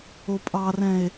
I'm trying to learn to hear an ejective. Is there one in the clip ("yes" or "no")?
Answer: yes